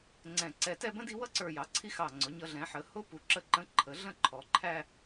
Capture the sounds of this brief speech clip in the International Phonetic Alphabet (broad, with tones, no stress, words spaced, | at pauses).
ŋ͡ǀɛ̃˧˩ǀɛ˧˩ tɛ˥˧bə̃˥di˥˧ wʌ˥ǀə˞˧˩jɑ˩˧ ǀʰi˥xɑ˧˩ ŋ͡ǀʊ˩˧ɲʌ˧ ɮɛ̃˩˧ħə˩˧ hʊ˥ pu˩˧ǁə˧ǃə̃˧ ǃʰə˩˧ɮə̃˥˧ ǃʰɔ˩˧ǃʰæ˥˧